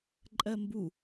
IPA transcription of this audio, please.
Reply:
ǃʼ ɜ m b u

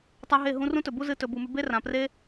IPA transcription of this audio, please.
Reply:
tˤ a˦ ɦ e˦˨ ɦ ũ˦ r ũ˦ t ɵ˨ b u˦ z ɨ˧ t ɵ˨ b u˨ m ʉ˧ b e˦ r ã˨ p r e˦

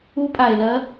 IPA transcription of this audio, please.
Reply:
u˦˥ pʼ a˧ e̯ l ɐ˦˥

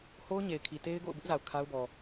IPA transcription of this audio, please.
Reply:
h o˦ ʊ̯ ɲ e˨ ɪ̯ kʰ i˨ t e˦ ɪ̯ ɡ o̰˦˨ ʊ̯ b ɪ˦ ʔ z a˨ ʊ̯ kʰ a˦ ʊ̯ b ɔ˨

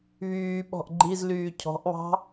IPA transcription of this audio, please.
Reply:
β yː ɓ ɔ̤ ʔ ɡ͡ǃ i z l yː cʰ ɔ̤ ʔ β ɑ̤

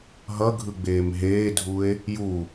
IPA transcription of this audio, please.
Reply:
ɦ ʌ ɡʱ ɯ ɡ͡b eː m ɦ eː dʱ u e̯ | j u

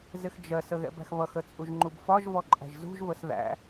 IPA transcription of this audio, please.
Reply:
z ɪ x d͡ʒ ɜ s ə ɣ ɛ̰ b æ̤ x β ʌ x ə t͡sʼ u ʒ ŋ͡ǃ u b f ɒ ʒ v ɔ ǃʼ æ̤ ʒ z ṳ ʒ v ə s ð æ̰

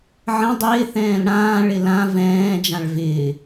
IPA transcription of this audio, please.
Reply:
ʕ ə̃ dˤ ɪː θ ɛ̃ː l ɽ ãː ɭ ɪ l ã v ɛ̃ː d͡ʒ ã ɭ v ɪː

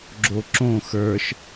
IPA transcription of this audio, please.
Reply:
ɡ͡ǁ o ǁ õ x ə˞ ʃ

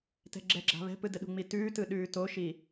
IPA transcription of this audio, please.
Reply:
t ɛ̤ ɡ͡ǁ ɛ ɡ͡ǁ a̤ β ɛ̤ p ɯ d ə ɗ ṳ ŋ͡m i t ʉː t ɯ ɗ ʉː t o ʃ i

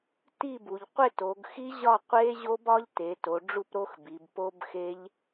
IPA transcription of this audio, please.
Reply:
t i˥˧ b u˩˧ ʎ qʷ e˥˧ t o˩˧ ɡ x i˦˥ ʑ ɒ˥˧ qʷ e˦˥ ʑ o˦˥ b ɒ˦˥ ʎ t e˩˧ t o˩˧ ɖ͡ʐ u˥˧ p ɾ o˦˥ x b i˩˧ b p o˦˥ b x e˦˥ ʎ

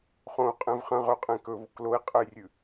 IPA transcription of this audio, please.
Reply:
χ õ u̯ qʼ ẽ v χ ɐ̃ ʁ ɵ qʼ ẽ k ɵ v o k l o i̯ qʼ ɨ j rʲ ʉ

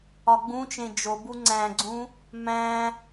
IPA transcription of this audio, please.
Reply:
ɒ ɡ͡b ũ t͡ʃ ẽ d͡ʒ o b u ŋ͡ǀ æ̃ ɡ͡ǀ ũ | m æ̃

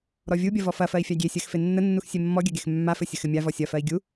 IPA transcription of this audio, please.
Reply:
ɾ ɔ vʲ u bʲ ɐ v ɔ f ɐ f ɜ i̯ fʲ a ɡʲ e sʲ ɜ x f e nː ə nː u x sʲ e mː ɔ ɡʲ ɐ ɡ e x mː a f ɘ sʲ ə x ɘ mʲ a v ɔ sʲ ɐ f ɜ i̯ ɡʲ u

